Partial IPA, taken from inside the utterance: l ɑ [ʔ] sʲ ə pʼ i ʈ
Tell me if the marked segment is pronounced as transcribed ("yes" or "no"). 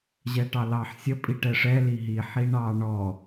no